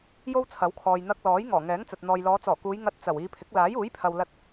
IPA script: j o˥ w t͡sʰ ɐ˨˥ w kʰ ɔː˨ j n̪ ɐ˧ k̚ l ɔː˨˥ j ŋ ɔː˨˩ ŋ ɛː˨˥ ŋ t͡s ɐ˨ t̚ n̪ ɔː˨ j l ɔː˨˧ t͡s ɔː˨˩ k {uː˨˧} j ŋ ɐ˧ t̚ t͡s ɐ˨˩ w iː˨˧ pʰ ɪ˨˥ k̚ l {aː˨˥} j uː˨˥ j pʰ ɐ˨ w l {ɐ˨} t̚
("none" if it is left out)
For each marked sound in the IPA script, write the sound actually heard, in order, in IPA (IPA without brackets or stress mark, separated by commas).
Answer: uː˨˧, aː˨˥, ɐ˧